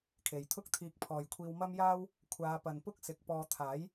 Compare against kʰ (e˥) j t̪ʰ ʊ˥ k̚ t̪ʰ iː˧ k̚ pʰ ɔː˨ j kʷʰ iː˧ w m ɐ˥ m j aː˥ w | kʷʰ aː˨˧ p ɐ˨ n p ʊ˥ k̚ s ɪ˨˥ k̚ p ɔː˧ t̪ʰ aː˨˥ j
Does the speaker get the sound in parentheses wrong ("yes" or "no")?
yes